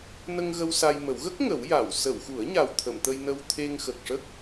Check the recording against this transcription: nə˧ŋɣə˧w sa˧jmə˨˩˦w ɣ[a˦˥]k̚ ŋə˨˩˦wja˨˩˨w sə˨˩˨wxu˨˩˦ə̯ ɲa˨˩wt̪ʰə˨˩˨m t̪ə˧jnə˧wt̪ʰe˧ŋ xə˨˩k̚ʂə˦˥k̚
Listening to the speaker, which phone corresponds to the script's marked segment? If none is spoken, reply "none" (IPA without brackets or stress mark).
ə˦˥